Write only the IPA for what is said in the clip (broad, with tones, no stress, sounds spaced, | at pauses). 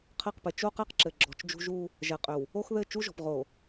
qʰ ɘ˦˨ q p ɘ˨ t͡ʃ o˦ q ɛ˦ q ǁ ɘ˨ ɡ͡ǁ ɔ̤˨ t͡ʃ d͡ʒ ṳ˦ ʒ u˦ | ʒ ɛ˨ qʼ ʏ˨ w | o˦ x ð ɘ˦˨ t͡ʃ u˦ ʒ ɔ̤˨ p ʁ o˨